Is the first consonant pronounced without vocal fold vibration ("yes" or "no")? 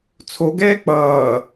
yes